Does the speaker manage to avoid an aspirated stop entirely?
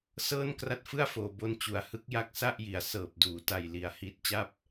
yes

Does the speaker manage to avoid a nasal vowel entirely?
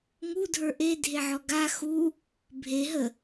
yes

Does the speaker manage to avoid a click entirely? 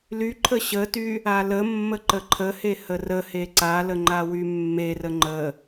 no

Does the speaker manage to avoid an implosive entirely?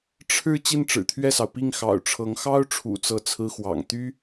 yes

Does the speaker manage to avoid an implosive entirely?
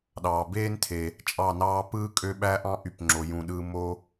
no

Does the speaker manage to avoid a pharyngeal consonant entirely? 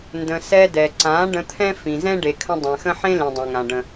no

